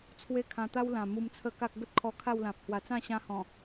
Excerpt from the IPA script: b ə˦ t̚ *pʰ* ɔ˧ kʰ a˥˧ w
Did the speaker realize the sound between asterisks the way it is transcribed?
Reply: no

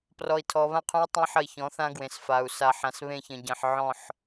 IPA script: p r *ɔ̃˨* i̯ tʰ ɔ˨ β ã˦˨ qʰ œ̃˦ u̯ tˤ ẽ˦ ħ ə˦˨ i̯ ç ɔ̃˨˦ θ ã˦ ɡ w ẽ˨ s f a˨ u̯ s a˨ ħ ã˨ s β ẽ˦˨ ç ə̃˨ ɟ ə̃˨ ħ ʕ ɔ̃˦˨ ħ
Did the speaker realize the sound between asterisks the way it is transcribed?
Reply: no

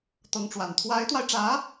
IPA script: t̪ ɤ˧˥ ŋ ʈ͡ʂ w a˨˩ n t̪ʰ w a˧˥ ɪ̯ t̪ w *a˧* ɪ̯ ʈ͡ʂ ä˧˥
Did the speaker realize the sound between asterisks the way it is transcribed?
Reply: yes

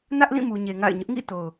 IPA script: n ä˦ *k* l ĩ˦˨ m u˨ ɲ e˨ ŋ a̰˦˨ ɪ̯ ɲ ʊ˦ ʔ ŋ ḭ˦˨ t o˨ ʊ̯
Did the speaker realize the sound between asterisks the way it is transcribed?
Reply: no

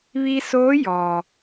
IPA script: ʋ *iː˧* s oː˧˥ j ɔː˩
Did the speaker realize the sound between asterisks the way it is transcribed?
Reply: no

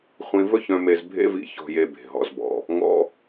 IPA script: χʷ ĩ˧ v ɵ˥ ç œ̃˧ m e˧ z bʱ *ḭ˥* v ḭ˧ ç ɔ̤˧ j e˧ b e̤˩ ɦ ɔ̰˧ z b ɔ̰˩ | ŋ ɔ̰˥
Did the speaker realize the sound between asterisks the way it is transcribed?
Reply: no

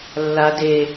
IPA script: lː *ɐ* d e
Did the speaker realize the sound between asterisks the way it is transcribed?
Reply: no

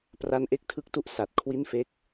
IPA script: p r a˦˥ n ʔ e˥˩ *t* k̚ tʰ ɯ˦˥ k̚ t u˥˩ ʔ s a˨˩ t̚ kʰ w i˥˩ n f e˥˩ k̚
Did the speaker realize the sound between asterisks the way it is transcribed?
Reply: no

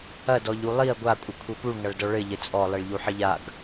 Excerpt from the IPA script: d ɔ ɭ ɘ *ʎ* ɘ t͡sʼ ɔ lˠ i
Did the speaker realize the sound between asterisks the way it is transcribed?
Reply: yes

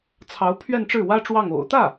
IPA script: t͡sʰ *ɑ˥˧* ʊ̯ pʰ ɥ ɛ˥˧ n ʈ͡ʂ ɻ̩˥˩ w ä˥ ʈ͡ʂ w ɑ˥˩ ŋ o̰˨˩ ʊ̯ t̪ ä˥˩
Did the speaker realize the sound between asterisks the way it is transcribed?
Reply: no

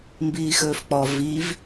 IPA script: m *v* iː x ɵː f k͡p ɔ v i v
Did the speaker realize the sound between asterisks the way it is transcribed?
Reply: no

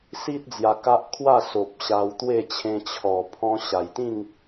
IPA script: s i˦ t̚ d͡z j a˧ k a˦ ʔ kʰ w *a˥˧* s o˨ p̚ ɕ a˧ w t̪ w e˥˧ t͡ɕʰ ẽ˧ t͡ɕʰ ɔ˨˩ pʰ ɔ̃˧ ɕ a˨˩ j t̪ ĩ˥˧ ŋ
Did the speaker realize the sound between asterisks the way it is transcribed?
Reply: yes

